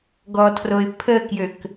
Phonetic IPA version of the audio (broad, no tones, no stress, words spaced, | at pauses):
ɡɔtʰroɪ̯ pʰəkjøk